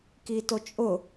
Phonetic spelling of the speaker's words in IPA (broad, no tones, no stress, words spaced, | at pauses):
kitot͡ʃʼʊ